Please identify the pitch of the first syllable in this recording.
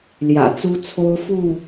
low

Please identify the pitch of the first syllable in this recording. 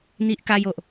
high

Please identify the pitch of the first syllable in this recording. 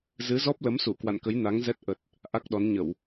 rising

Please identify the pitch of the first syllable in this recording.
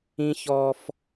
high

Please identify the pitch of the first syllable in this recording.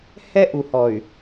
high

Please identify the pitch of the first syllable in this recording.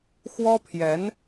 high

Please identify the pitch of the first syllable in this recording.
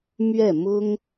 falling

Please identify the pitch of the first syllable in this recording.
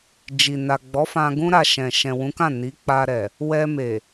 low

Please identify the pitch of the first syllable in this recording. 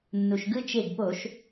low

